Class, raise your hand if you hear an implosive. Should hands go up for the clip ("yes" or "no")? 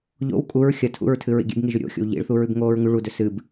no